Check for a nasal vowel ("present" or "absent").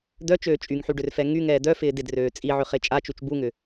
absent